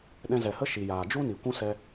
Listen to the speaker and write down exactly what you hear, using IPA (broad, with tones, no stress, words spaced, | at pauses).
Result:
ɗɛ̃˧zɛ˨hə˦ ʃi˨jaː˨ d͡ʒu˧ ni˨kʷũ˦sɛ˧